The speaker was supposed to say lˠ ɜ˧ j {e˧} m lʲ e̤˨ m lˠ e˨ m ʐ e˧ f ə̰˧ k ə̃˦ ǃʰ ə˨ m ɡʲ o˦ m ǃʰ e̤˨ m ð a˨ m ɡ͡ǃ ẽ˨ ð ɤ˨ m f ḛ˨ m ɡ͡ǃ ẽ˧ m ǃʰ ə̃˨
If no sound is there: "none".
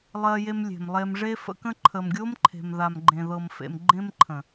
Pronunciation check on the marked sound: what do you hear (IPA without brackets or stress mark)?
e˧